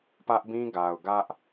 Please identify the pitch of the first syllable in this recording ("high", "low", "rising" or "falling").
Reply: high